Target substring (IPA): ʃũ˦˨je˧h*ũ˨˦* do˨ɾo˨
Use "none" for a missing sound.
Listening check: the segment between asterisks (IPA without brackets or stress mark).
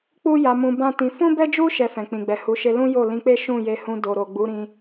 ũ˧